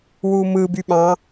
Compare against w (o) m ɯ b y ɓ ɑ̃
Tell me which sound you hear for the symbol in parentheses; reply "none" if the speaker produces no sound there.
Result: u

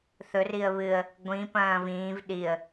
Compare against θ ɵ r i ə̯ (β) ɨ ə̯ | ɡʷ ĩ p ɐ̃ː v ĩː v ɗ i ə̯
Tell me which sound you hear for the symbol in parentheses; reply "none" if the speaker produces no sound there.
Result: β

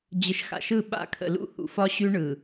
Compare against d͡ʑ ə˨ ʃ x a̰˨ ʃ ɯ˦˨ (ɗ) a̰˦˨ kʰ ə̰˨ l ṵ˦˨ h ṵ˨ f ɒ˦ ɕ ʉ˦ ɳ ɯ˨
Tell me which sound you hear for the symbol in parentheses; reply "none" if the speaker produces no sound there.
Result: ɓ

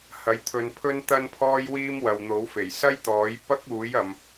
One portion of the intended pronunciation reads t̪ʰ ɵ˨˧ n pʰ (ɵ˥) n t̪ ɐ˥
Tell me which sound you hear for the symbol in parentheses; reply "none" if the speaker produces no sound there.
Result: ɵ˥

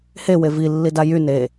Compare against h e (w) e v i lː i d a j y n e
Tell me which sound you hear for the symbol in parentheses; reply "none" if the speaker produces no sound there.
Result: w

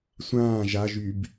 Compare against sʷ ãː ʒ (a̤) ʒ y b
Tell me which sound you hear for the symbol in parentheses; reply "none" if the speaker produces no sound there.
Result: a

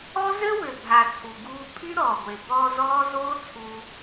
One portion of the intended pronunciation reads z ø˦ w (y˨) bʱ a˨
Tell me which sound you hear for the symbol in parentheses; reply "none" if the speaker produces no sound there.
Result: ø˨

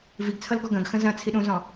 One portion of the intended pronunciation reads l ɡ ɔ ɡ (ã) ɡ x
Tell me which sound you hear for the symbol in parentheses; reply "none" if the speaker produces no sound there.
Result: ɐ̃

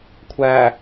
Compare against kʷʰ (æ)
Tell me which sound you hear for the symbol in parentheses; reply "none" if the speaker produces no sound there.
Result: æ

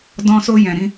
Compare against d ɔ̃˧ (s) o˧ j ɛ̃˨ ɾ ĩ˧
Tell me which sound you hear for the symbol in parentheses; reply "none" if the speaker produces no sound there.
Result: s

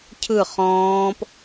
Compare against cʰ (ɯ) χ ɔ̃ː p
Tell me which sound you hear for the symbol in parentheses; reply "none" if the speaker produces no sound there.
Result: ɯ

